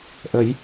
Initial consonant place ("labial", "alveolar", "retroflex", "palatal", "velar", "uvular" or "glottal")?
glottal